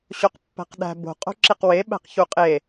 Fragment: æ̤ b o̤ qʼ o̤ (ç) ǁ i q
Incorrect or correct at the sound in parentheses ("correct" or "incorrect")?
incorrect